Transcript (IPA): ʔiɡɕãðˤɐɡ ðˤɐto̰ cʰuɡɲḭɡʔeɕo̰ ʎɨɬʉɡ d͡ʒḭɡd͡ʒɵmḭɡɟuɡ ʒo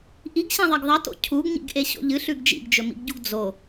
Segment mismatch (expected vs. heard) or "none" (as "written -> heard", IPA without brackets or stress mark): ʒ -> d͡z